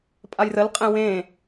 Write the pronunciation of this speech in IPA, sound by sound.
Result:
pʼ a j r ə l qʼ ẽ w ẽ

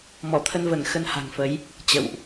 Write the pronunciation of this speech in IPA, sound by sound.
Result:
m ɔ˧˩ t̪ʰ ə˧ n v ə˧˩ n x ə˧ n h a̤˨˩ ŋ f ə˨˦ j | t͡ɕ ə̰˧˨ w ʔ

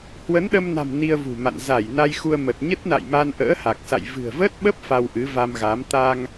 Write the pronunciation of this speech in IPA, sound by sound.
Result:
h w ə˨˦ n ɗ ə˧ m n a̤˨˩ m n i˧ ə̯ v ṳ˨˩ m a̰˧˨ n z a˧˩ j n a˧ j x u˧ ə̯ m ə˨˩ t̚ ɲ ə˦˥ t̚ n a̰˧˨ j m a˧ n ʔ ə̰ː˧˥ h a˨˩ k̚ s a̰˧˨ j v ɨ̤˨˩ ə̯ v ə˦˥ t̚ ɓ ə˦˥ p̚ f a˧ w ʔ ɨ˨˦ v a˧ m ɣ a˨˦ m t̪ a˧ ŋ

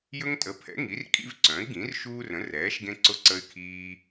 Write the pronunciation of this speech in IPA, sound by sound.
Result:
j ɵ˦ ŋ tʼ ə˩˥ pʰ ɛ̰˩˥ ŋ i˩˥ r kʼ ḭ˦ v ǀ œ̃˩˥ i̯ ɡ ĩ˩˥ r ʃ uː˦ r ə̃˩˥ r ɛː˩˥ ʃ ɡ ẽ˦ ǀ ʊ˦ ǀ ə˦ y̯ kʰ iː˦

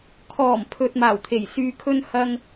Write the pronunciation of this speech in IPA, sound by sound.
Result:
kʰ ɔː˨˩ m pʰ ɵ˨ t̚ m aː˨˩ w t̪ʰ e˨˩ j s yː˨ kʰ ɵ˧ n h ɐ˧ ŋ

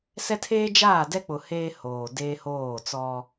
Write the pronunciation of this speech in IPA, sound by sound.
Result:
s ɛ˦ tʰ eː˦ d͡ʒ aː˦˨ d ɛ˦ k͡p ʊ˨ h eː˦ h oː˨ d eː˦ h oː˦˨ t͡s ɔ˦

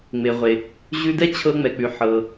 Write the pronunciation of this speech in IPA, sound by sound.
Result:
ŋ͡m e˩ ʁʷ e˩ | ʑ ʉ˧ d ɛ˥ t͡ɕʰ ɤ˧ ŋ͡m ɛ˩ k͡p ʉ˩ ħ ɤ˩

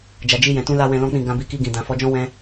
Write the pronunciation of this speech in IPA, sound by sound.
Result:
d͡ʒ a˨ d͡ʒ i˧ j ɛ̃˨ t ũ˧ l a˦ w ɛ̃˧ l ɔ̃˦ k͡p ĩ˦˨ ɡ ã˧ b i˧ k i˧ ɡ ĩ˨ d ã˨ f ɔ˨˦ d͡ʒ ɔ̃˦ w ɛ̃˦

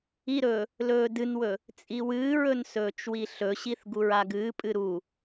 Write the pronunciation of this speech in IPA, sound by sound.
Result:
i ɾ ɵː | l ɵː d ɨ n w ɵ | t͡sʼ i w ɨː ɹ ɵ n s ɵː t͡ʃ w i ɬ ɵ ɕ i θ ɡ u ɹ a ɡ ɨː pʼ ɨ ɾ u

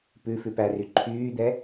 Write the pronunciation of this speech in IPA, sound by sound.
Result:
p ʉ f ʉ p æ r y ǃʰ yː d̪ ɛ

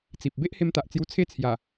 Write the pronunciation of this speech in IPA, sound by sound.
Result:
t͡s i˨ p̚ b e˦ ʔ h e˧ m t̪ a˨ ʔ t͡s j u˧ t͡sʰ e˦ t͡sʰ j a˨˩

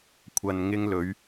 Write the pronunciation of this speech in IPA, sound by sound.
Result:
kʷʰ ɐ˨ n ŋ ɪ˧ ŋ l ɵ˨˧ ɥ

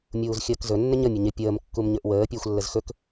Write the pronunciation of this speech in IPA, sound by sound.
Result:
mʲ uː z xʲ əː k z ɵ nː ɪ ɲ ə mʲ ɵ ɲ ɪ pʲ əː m kː u m ɲ ɵ ʔ w əː pʲ əː xʷ lː ə z x ɵ k

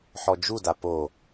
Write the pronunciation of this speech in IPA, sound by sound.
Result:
ħ ɔ d͡ʒ u d a p o

